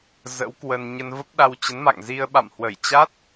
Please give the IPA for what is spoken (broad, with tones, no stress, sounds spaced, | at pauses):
z ə̰˧˥ w k w ə˧ n ɲ ə˧ n v ə˦˥ p̚ ɗ a˧ w t͡ɕ ə˨˦ n m a̰˧˨ ŋ z i˧ ə̯ ɓ a̰˧˨ m h w ə˧˩ j t͡ɕ a˦˥ t̚